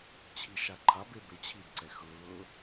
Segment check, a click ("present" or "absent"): present